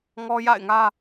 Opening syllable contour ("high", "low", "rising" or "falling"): high